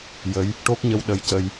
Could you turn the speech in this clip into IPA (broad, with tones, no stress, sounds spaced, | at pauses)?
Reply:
j ə˧˥ j | ʈ o˦˥ k̚ ɲ ə˧ w ɗ ə˧ j c ə˧ j